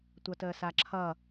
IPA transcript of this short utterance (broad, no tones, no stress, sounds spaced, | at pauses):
tʷ ʌ t əː s a ǁʰ ʌ